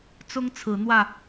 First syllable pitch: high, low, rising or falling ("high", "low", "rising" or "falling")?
high